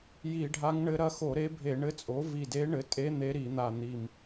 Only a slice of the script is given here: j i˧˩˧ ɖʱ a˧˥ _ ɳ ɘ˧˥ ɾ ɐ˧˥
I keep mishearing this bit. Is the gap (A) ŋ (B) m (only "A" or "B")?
A